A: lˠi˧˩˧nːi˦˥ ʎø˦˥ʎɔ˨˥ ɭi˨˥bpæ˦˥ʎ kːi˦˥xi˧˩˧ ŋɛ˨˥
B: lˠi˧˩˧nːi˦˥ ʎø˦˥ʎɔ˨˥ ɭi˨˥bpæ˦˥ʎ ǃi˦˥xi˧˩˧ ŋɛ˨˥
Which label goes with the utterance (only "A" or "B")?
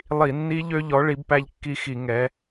A